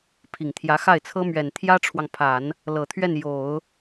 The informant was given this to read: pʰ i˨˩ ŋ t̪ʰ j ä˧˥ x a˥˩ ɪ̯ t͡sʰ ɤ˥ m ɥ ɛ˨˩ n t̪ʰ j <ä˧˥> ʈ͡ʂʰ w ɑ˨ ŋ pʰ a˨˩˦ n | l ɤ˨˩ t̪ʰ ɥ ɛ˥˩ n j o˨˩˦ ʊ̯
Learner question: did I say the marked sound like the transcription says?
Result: no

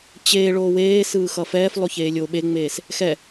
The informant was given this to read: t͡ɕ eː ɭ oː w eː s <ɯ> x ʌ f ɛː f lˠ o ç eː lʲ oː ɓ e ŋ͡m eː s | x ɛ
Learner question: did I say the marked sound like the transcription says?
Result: no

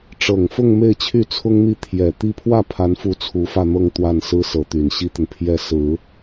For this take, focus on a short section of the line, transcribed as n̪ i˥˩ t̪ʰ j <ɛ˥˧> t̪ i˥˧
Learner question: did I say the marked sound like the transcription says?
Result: no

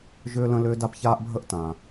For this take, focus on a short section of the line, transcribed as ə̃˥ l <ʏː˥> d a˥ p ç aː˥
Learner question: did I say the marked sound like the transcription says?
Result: yes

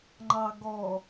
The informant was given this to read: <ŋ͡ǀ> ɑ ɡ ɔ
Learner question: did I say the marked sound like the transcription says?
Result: no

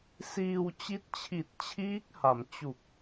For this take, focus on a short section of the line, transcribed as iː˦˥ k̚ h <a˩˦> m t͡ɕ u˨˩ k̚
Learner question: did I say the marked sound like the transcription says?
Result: yes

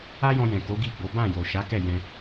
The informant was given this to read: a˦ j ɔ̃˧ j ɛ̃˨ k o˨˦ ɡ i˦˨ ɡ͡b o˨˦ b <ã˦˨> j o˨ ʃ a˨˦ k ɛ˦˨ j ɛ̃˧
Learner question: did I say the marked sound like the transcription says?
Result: yes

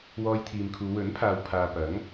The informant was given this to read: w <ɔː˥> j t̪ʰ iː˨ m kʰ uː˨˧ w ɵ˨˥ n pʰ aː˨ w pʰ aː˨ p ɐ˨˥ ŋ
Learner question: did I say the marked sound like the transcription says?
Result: no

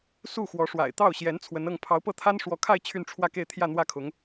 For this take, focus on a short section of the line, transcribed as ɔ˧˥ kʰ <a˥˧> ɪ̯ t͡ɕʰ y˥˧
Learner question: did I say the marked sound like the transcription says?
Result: yes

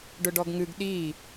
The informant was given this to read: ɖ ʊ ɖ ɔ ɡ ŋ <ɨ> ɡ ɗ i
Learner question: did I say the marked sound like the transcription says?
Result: yes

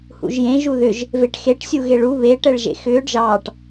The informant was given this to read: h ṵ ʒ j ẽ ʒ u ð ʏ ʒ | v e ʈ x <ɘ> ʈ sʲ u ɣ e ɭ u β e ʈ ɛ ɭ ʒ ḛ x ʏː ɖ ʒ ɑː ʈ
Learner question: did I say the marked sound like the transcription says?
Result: no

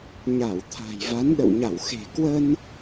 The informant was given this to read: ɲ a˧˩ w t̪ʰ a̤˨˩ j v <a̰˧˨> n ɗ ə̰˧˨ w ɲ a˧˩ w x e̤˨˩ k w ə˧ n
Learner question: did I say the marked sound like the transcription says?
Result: no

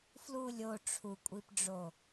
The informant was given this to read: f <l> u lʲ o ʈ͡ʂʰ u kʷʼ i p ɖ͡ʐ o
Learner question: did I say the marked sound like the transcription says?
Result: yes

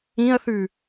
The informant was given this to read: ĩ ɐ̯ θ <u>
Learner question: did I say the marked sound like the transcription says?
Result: no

